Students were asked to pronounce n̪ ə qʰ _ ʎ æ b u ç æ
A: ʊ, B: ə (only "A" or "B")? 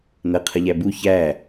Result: B